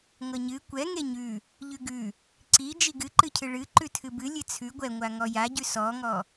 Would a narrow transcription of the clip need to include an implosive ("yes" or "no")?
no